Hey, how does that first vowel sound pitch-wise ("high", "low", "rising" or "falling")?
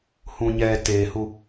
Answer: low